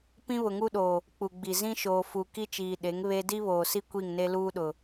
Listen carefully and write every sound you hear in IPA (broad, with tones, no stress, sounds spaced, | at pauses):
p ĩ˦ β ʊ˨ ŋ u˦ ɗ oː˨ | k͡p u˨ ɡ͡b i˨ z ĩ˦ ʃ oː˨ f u˨ k i˦ t͡ʃ iː˨ ɗ e˨˦ ŋ β e˦ d i˦ β oː˨ s i˦ kʷ i˦˨ ŋ n e˦ l uː˦ ɗ ʊ˨